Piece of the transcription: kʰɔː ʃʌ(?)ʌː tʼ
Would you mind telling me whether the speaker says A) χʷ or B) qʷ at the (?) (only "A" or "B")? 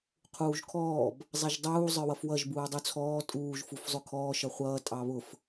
A